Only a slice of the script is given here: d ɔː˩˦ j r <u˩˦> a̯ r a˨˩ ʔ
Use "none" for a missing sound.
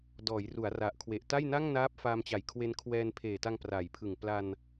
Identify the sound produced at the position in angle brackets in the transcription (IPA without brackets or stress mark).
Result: u˩˦